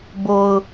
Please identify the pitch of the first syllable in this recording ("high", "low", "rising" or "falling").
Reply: low